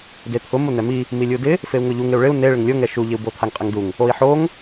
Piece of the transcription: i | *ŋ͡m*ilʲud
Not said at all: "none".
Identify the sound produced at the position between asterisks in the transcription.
m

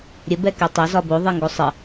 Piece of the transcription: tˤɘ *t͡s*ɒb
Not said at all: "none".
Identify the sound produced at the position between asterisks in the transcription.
z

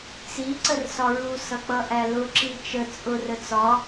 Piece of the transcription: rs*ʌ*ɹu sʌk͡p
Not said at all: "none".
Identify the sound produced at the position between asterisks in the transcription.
ɒ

